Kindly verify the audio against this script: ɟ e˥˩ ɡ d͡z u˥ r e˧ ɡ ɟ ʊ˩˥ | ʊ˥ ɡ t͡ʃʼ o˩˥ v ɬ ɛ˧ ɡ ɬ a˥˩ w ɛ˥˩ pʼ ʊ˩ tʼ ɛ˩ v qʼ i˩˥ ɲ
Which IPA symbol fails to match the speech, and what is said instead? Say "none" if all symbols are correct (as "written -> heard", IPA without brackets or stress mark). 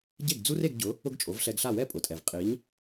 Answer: none